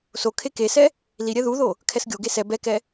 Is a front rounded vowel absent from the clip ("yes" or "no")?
yes